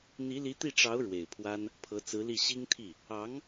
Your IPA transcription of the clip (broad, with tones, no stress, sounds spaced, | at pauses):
n̪ i˧˥ l i˧˥ t̪ i˥˩ ʈ͡ʂ ɑ˧˥ ʊ̯ ɻ w e˨˩ ɪ̯ pʰ w a˥ n | pʰ ɤ˧˥ t͡s ɹ̩˧˥ l i˥˩ ɕ i˥ ŋ t̪ʰ i˥˩ | ɑ˧˥ ŋ